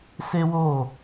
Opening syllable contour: high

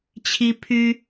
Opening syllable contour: high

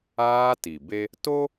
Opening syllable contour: high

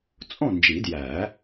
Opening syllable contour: falling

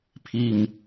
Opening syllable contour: low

